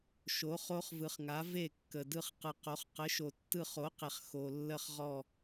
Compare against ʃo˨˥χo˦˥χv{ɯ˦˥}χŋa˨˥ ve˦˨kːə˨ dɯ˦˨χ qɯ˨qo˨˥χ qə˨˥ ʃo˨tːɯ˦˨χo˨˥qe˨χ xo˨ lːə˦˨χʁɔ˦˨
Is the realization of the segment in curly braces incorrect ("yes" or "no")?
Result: yes